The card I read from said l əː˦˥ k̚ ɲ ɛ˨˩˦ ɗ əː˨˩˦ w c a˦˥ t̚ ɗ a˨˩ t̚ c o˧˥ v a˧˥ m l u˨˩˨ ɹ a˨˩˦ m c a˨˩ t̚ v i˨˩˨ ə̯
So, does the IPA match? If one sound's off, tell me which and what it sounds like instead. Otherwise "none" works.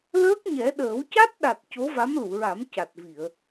none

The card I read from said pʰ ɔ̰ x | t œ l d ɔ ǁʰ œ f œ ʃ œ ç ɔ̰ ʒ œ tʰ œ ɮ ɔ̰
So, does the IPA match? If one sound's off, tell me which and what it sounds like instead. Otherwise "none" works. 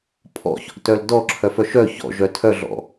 x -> ç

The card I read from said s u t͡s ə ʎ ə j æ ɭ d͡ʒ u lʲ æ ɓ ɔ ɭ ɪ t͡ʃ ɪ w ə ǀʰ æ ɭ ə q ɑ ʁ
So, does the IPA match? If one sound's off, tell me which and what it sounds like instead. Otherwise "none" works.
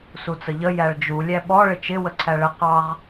none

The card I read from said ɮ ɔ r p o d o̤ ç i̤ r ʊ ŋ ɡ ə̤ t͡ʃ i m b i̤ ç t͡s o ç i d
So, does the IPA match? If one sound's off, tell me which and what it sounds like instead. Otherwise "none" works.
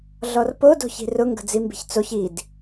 t͡ʃ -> d͡z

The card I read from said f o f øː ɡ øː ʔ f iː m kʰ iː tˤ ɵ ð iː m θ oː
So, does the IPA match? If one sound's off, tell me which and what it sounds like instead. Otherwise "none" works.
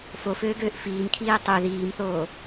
ɵ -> ø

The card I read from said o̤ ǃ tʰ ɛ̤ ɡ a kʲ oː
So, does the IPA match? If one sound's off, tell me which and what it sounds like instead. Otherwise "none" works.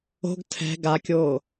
ǃ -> ɡ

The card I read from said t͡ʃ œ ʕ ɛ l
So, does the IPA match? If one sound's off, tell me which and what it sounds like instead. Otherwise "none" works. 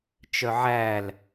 ɛ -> æ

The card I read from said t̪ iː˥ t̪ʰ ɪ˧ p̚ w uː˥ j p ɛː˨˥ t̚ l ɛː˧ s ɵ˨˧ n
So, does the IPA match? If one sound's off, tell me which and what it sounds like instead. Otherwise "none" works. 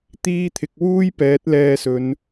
p̚ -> k̚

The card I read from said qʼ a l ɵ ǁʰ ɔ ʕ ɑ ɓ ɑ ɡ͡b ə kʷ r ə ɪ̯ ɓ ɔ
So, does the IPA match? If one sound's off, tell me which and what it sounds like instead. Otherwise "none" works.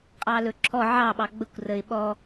a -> ɑ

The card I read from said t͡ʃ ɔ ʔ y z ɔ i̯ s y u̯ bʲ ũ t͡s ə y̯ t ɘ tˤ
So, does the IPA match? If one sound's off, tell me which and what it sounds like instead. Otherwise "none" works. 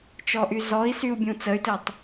none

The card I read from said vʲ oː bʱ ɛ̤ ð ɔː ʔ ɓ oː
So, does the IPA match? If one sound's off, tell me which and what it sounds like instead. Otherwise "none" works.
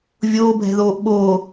ɔː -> oː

